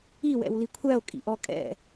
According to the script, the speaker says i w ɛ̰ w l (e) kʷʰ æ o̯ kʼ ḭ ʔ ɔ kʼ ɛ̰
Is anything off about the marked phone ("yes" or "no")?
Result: yes